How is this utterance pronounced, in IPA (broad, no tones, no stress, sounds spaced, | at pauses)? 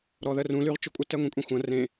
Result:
ɾ ɔ ð ə r ũ l y ʁ t͡ʃ ʊ kʷʼ ə t ɛ ŋʷ ẽ kʷʼ ẽ xʷ ɐ̃ r ẽ